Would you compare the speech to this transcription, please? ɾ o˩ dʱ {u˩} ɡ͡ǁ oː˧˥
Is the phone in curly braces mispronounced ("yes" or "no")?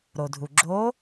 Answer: no